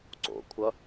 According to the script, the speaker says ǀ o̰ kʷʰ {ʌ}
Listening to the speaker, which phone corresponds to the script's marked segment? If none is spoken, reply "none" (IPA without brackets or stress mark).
ʌ